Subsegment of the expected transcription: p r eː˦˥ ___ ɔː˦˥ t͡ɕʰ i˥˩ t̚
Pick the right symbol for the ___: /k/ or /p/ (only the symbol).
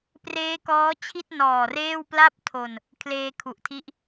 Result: k